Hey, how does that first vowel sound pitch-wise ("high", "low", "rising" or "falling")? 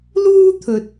high